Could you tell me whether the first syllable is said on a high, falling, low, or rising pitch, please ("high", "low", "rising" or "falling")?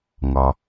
low